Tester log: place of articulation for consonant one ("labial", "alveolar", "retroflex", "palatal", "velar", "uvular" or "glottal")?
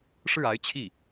retroflex